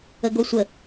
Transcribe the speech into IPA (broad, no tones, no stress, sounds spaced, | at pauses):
ə ɡ o sʷ ə